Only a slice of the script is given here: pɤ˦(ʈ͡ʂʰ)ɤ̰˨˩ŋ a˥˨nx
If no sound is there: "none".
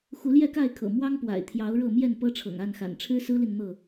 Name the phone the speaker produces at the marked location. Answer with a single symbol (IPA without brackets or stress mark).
ʈ͡ʂʰ